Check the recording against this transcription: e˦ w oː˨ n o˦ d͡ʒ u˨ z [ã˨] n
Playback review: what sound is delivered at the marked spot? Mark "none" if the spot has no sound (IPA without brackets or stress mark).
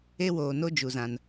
ã˨